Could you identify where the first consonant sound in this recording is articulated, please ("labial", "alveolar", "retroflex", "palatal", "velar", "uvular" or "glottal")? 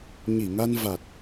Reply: palatal